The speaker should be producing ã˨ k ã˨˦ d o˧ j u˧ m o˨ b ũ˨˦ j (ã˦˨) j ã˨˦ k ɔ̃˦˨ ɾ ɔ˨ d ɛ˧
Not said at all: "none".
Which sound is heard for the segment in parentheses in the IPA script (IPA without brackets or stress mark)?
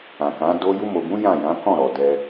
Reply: ã˦˨